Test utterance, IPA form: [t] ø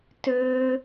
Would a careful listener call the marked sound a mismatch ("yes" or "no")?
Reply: no